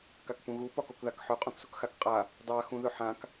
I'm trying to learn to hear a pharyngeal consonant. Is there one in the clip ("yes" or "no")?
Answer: yes